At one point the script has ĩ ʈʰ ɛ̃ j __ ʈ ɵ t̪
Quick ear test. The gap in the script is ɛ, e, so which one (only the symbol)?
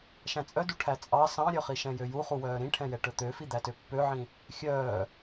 ɛ